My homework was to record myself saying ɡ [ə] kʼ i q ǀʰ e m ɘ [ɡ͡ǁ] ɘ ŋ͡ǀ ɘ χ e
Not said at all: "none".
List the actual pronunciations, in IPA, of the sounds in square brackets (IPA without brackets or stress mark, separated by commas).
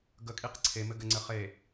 ə, ɡ